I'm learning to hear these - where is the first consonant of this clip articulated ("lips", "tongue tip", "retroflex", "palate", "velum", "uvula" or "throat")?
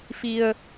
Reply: lips